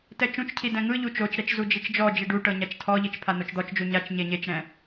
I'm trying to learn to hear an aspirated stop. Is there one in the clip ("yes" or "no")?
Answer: yes